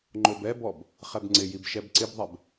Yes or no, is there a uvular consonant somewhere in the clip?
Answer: yes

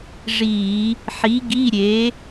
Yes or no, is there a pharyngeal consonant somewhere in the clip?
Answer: yes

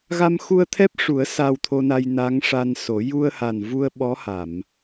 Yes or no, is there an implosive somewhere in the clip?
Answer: yes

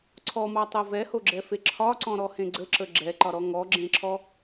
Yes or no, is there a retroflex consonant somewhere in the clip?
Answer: no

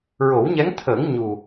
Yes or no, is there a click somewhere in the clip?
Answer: no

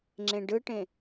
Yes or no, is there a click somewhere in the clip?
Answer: yes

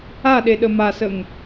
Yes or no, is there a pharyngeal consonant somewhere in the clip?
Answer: no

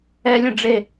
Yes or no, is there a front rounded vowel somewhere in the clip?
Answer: no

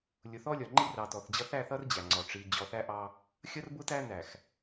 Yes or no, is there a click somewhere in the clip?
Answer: yes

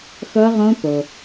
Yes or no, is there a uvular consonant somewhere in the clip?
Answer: yes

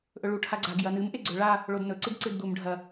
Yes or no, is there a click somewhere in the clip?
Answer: yes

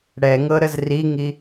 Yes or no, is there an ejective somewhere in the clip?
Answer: no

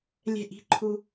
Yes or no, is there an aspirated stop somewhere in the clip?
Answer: yes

